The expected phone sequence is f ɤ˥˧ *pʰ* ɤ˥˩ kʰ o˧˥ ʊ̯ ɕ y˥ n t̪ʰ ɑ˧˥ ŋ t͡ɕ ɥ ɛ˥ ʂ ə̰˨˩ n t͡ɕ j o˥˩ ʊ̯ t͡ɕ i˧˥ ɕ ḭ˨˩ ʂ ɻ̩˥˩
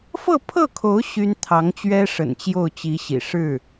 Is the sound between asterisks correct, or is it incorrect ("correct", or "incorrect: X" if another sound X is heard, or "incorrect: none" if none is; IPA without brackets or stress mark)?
correct